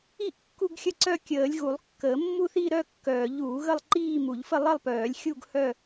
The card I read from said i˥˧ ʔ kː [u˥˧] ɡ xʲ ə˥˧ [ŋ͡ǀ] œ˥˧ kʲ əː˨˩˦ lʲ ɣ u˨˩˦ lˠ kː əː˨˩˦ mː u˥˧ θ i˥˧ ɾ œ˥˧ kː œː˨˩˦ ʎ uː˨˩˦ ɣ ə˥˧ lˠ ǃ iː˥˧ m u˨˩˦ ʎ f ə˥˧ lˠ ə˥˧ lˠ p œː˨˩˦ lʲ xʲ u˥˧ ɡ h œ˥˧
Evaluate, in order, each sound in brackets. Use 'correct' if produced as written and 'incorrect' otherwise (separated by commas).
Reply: correct, incorrect